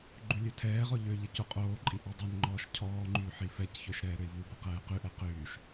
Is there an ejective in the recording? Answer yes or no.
yes